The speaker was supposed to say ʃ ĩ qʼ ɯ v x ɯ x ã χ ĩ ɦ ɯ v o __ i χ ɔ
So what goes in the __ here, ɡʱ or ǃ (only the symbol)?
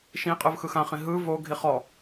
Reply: ɡʱ